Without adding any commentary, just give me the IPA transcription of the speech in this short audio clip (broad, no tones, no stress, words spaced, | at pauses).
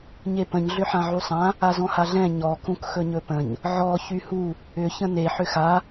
ɲepə̃ɲ ɮʏħãʕusˤã | azɔ̃haɮɛ̃ ɲɔ kũkxɵɲɵpə̃ɲ | ʕɔ çyhu | ʏ çə̃ne ħʏxa